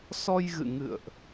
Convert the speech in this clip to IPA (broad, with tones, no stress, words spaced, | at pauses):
sɔ˧jɣɨ̰˧˨ ŋɨ̰˧˨ə̯ʔ